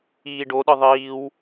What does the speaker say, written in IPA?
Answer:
iː ɖ o ɗ ɯ ðˤ iː w

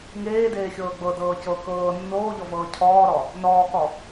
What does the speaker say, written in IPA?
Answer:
ŋ eː d eː xʲ ɤː ɡ͡b ɤ d ɤː c ɤ k ɤː nː oː ʎ ɔ v ɤː cʰ ɔː ɾ ɔ | n ɔː k ɔ

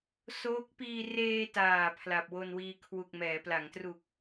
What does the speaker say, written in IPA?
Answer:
s oː˦˥ k̚ p iː˧ r eː˧ t aː˨˩ pʰ l a˨˩ p̚ w o˧ n w iː˧ kʰ w u˨˩ k̚ m ɛː˩˦ p l a˩˦ ŋ t r u˨˩ k̚

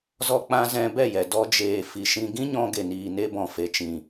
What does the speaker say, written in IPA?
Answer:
z ɔ˧ k͡p ã˧ z ɛ̃˧ b ɛ˦˨ j ɛ˨ d ɔ˧ d͡ʒ eː˨ f i˨ ʃ ĩ˧ ɡ ĩ˦ ɲ ɔ̃˧ ɡ e˨ n iː˨ n e˧ b ɔ̃˨ f e˨ t͡ʃ ĩ˨

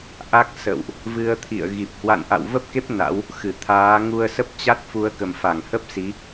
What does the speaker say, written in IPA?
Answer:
ʔ a˦˥ k̚ s ə̰˧˨ w ʔ | v ɨ˧ ə̯ t̪ʰ ḭ˧˨ ə̯ ɣ i˨˩ p̚ h w a̰˧˨ n ʔ a̰˧˨ w v ə˦˥ p̚ k e˦˥ p̚ n a̰˧˥ w | x ɨ˧˩ t̪ʰ aː˨˦ ŋ u˧ ə̯ s ə˦˥ p̚ t͡ɕ a˦˥ t̚ f u˨˦ ə̯ k ə˨˩ m f a˧˩ ŋ h ə˦˥ p̚ s i˨˦

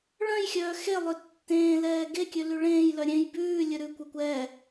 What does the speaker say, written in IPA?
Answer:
ɭ œ̃ j xʲ œː x e lˠ ø tː ẽː l ɛː ɡ e kʲ ø l y ɭ ẽː j l œ ɾʲ ẽ j b ʉː lʲ ɵ ɾ ʉ kʷ e kʷ ɛ

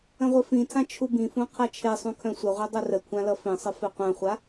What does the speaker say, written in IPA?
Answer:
ə̃ ʁʷ ɘ f ĩ tʰ ã t͡ʃʰ u b ĩ f ũ qʰ a t͡ʃʰ e sˤ ũ kʰ œ̃ sʷ ə ʁʷ i dˤ u r ə kʷʰ ã l ʌ f ĩ sˤ ə f e qʷ œ̃ χʷ a

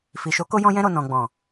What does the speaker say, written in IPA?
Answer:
f i˨ ʃ o˨˦ k o˧ j ɔ̃˧ j ɛ̃˧ ɾ o˨ n ɔ̃˨ ɡ͡b ɔ̃˨

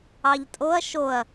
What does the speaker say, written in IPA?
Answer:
ɑ ʎ tʼ o ɐ̯ ʃ o ɐ̯

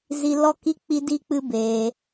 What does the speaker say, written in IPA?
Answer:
z i˧ l ɔ˦ k i˦ k͡p i˧ d i˧ k͡p ɨ˧ b eː˧

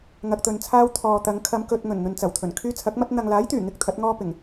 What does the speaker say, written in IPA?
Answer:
ŋ ɐ˧ k̚ t̪ ɵ˧ n t͡sʰ aː˥ w t̪ʰ ɔː˨ t̪ ɐ˨˧ ŋ kʰ ɐ˨˧ m k ɵ˨ t̚ ŋ ɵ˨˩ n n̪ ɵ˨ n t͡s ɐ˨˩ w t̪ʰ ɵ˨˩ n kʰ yː˥ t͡sʰ ɐ˨˥ k̚ m ɐ˥ t̚ n̪ ɐ˨ ŋ l aː˨˥ j t̪ yː˨˩ ŋ ɪ˥ k̚ t̪ʰ ɐ˨˥ t̚ ŋ ɔː˧ p ɪ˨˩ ŋ

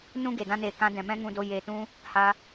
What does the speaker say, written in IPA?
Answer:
n ũ˦ ɡ e˨ d ã˧ n eː˨ k ã˧ d ɛ̃˨ m ɛ̃˦ ŋ ũ˧ d o˧ j e˨ t ũ˧ | h a˧

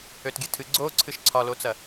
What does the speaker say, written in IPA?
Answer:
ø t ɡʲ ɨ tʰ ɨ ɡ͡ǀ o ǀʰ ɨ ʃ ǀʰ ɒ l o t͡s ɐ

